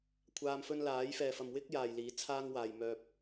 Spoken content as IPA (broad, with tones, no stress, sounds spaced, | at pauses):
kʷʰ aː˧ m f ɵ˥ n l aː˨˥ j f ɛː˨ f ɐ˨ m w ɪ˥ k̚ j aː˨ j l iː˨˥ t͡sʰ aː˥ ŋ w aː˨ j m œː˨ p̚